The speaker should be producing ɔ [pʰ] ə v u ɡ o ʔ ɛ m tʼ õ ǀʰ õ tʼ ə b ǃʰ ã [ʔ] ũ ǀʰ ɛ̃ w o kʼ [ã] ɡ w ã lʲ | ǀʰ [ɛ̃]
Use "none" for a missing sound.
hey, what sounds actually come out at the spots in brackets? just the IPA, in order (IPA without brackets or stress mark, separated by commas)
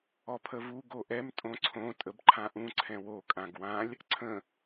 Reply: pʰ, ʔ, ã, ə̃